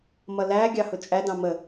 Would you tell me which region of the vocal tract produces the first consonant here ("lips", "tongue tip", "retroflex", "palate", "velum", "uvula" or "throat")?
lips